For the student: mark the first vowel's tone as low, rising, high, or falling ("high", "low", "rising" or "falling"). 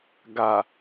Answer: low